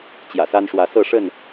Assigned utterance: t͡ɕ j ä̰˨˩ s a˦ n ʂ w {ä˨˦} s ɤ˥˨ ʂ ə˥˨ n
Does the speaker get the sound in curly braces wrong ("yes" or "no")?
no